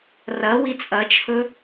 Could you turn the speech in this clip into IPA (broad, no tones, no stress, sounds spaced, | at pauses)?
r ɐ w i t͡sʼ ɐ t͡ʃʰ ɵ